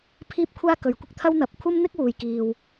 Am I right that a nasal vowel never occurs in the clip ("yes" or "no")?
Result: yes